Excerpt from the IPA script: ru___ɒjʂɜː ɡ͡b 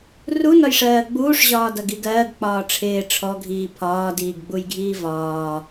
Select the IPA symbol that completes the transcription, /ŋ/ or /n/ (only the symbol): n